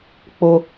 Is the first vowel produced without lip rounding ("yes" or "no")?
no